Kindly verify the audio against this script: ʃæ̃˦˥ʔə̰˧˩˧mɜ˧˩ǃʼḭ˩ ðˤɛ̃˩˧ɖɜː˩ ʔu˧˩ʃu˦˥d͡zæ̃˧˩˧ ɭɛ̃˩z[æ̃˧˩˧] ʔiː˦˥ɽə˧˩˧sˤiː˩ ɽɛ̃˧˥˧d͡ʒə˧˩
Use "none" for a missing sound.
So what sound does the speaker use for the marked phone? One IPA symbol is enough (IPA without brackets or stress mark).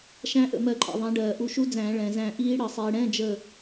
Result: æ̃˧˩